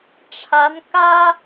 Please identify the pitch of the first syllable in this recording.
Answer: rising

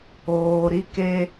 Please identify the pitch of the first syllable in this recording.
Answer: low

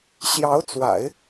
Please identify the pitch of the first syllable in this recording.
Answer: rising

